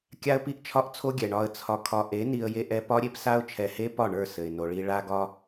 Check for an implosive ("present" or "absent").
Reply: absent